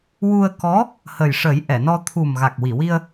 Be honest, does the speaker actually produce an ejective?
no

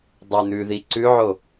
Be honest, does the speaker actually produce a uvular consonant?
no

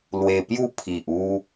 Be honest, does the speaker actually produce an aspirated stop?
yes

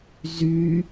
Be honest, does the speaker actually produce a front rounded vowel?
yes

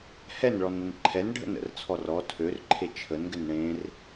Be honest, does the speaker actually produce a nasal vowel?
yes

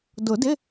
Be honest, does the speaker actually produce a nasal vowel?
no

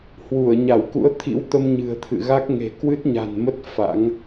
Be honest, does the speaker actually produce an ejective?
no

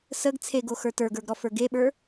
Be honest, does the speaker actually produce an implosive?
yes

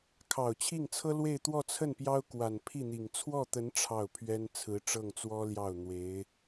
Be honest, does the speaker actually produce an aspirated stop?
yes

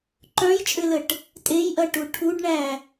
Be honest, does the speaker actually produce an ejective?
yes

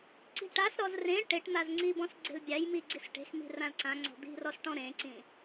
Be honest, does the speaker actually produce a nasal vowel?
yes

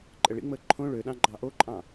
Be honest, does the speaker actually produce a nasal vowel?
yes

